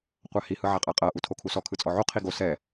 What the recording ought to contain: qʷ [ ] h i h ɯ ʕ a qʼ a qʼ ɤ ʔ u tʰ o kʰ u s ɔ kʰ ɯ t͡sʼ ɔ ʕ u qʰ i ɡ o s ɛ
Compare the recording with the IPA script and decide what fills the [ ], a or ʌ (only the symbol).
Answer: a